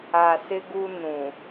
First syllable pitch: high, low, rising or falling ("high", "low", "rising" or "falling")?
low